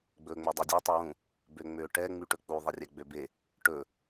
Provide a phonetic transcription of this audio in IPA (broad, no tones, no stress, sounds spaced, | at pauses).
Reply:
ɡ͡b ɵː ŋ͡m ø dˤ œ dʲ o tˤ u w ũ | b ø ŋ͡m ø ʈ ɛ ŋ͡m y ʈ ɵ k͡p u ðˤ e rʲ ɛ ɡ͡b ø b e | ʈ ɵ